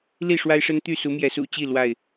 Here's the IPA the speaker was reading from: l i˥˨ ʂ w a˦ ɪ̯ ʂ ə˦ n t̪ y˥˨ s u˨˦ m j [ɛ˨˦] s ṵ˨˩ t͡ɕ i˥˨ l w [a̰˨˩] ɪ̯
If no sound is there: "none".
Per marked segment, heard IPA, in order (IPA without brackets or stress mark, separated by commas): ɛ˨˦, a˥˨